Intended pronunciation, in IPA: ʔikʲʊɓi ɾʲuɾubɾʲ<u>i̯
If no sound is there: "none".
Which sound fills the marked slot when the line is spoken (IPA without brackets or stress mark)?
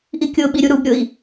ʊ